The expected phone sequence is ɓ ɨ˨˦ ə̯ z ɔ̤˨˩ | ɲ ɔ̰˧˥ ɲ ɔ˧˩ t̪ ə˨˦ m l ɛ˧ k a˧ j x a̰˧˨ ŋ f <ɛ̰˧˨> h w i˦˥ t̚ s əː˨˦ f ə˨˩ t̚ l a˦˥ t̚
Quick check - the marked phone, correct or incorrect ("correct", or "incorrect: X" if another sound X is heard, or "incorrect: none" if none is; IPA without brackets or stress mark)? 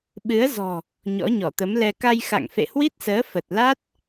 incorrect: ḛ˧˨